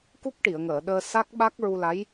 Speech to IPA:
k u˦˥ k̚ ʈ i˨˩˨ ə̯ ŋ əː˨˩˨ ɗ əː˧ s a˦˥ k̚ ɓ a˦˥ k̚ ɹ u˧ l a˧˥ j

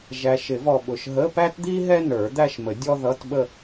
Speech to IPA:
ʒ æ˨ ʃ ɪ˨˩˦ v ɔ˨ ɓ ʊ˨ ʃ ɦ ə˧˥˧ p æ˥ t d̪ i˥ ɦ ɛ˥ n ə˞˨˩˦ d̪ æ˥˧ ʃ m ə˨˩˦ dʲ ɔ˥ ð ʌ˧˥˧ t ɓ ə˥˧

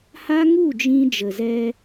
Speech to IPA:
h a˦ ŋ u˦˨ d͡ʒ ĩ˧ d͡ʒ ə˨ z ɛ˧

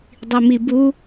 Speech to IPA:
dˤ i m i b u

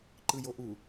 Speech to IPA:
ǃ ɯ j o ʔ u

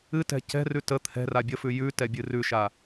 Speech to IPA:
ɨ t ɛ̤ c ɛ̤ r ʉ t ə t̪ʰ ɛ̤ r a bʲ ə f ʉ j ʉ t ɛ bʲ ɨ r ʉ ʃ a

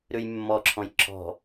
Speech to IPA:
ɾ ʉ j mː ɔ ǁʰ ɔ̃ j ǁʰ ɔ̤

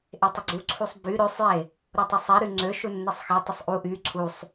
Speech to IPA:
ʔ e tˤ ə ɡ͡ǀ u ǀʰ u sˤ b y ɾ ø sˤ j e | ɾ u tˤ ə sˤ ɛ ɾ y ŋ͡ǀ ø ʃ u nː e sˤ x e tˤ ə sˤ ʔ u ʔ y ǀʰ u sˤ

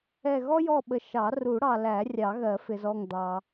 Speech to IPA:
ɛ˦˨ ɣ ɔ˥ j ɔ˦˨ ɓ ə˨ ʃ ɑ˨˩˦ r u˨˩˦ ɽ ɑ˨ l æ˨˩˦ rʲ ɑ˨˩˦ ɣ ɜ˨˩˦ f ɪ˨ z ɔ˦˨ ŋ d̪ ɑ˨

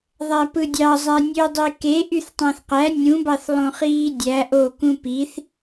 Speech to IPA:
ðˤ æ p ɯ dʲ ɑ zˤ æ nʲ ø dˤ i k e ʔ y θ tˤ æ̃ θ q æ nʲ ũ b ɑ θ lˠ õ χ iː dʲ æ ʔ o k ũ p i θ

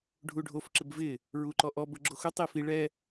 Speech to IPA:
ɖʱ u ɖʱ o f ǁ ɪ b v ɪ | ɹ u ǃ ɔ ʔ ɔ b ʊ ɡ͡ǁ o x ʊ tˤ i f i ɭ ɛ

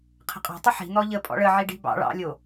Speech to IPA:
qʰ ə̤ qʼ ɑ̤ tˤ ə ħ i̤ n̪ ɔ ʎ ə pʼ ɔ̰ ɭ ə ʕ i ɖ i̤ b ɑ̰ ɭ ɑ̰ lʲ o

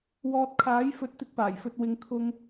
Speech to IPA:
w ɔː˨ t̚ kʰ aː˨˥ j f ɵ˨˥ t̚ t̪ ɪ˨˥ k̚ p aː˨˩ j f ɵ˨ t̚ w ɪ˨ ŋ kʰ ʊ˧ ŋ

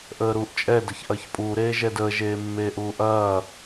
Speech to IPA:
ʔ əː ɾ uː ʔ t͡ʃʼ ɛ d ə ç ʔ ɐː ç pʼ uː ɾ eː ʒ ɛ d əː ʒ eː mː eː ʔ uː ʔ ɐː

